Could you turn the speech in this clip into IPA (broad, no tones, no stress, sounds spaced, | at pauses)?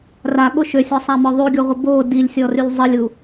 r a ɠ o ʃ ø sʲ ɔ sˤ a m ɔ ðˤ u ɡʲ o ʁʷ ə b o d i lʲ sʲ ɔ r y lʲ zˤ ə lʲ u